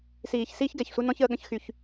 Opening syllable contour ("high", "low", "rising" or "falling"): low